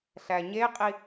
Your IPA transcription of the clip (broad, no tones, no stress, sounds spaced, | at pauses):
ɬ æ ɲ e qʼ i